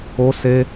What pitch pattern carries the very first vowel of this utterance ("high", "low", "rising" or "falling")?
high